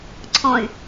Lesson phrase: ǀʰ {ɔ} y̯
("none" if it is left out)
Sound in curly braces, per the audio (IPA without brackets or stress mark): ɔ̃